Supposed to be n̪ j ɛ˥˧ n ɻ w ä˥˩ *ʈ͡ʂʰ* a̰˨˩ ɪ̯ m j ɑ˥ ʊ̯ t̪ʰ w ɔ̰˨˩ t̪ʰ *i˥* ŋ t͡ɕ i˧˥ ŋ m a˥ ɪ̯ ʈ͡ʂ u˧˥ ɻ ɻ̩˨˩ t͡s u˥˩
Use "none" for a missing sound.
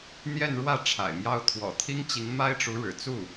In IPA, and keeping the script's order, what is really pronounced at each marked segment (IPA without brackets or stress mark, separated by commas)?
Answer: ʈ͡ʂʰ, i˥